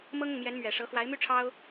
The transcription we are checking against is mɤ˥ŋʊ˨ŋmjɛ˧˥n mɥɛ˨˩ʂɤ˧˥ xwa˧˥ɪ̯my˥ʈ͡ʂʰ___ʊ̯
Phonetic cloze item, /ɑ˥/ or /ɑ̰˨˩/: ɑ˥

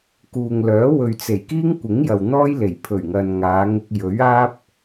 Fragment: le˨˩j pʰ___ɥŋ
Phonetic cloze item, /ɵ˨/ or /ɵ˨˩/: ɵ˨˩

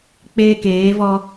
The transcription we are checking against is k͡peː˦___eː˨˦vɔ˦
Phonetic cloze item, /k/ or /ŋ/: k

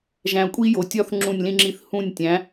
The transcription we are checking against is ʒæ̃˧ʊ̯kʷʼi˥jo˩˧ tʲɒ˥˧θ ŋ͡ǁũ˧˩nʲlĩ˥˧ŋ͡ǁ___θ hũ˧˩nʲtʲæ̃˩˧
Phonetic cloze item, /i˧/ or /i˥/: i˧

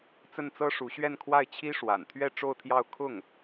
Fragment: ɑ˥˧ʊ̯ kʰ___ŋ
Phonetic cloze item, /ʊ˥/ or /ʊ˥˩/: ʊ˥˩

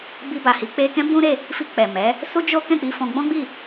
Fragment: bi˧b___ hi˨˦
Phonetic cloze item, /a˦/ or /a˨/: a˨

